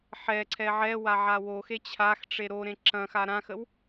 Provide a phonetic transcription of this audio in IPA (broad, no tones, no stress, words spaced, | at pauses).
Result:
ħɛǀʰɛ ʕɛwa ʕawoxe t͡ɕʰaxʈ͡ʂe ɾoɾẽ ǁɐ̃xa ɾãxəw